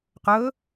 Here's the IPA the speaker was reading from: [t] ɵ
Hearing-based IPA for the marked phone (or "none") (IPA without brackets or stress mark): q